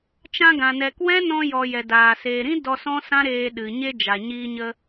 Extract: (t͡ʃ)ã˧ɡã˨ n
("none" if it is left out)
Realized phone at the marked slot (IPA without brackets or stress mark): t͡ʃ